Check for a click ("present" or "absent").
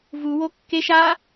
absent